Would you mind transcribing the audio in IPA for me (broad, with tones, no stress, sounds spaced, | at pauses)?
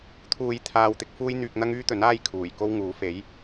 t̪ʰ uː˧ j t̪ʰ aː˨ w t̪ ɪ˨˥ k̚ f uː˥ j n̪ yː˧ k̚ n̪ ɐ˥ ŋ yː˥ t̪ ɵ˨˥ n aː˥ j kʰ uː˨˩ j k o˥ w ŋ uː˨˥ f e˨˥ j